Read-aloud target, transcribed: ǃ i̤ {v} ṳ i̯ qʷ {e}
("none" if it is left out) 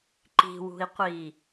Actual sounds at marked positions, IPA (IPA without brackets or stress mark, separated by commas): w, i